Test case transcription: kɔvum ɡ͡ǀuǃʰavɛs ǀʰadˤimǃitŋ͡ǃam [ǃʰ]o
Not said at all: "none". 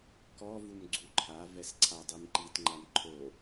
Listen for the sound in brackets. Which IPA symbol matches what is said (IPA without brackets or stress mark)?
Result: ǃʰ